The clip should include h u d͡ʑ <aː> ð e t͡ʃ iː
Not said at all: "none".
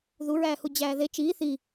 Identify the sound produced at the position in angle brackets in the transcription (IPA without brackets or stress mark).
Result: æː